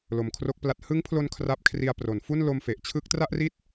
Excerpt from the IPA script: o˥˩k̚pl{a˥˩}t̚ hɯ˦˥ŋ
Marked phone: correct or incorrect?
correct